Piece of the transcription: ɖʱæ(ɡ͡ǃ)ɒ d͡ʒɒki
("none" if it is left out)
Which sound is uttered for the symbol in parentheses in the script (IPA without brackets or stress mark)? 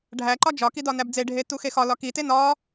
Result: ǃ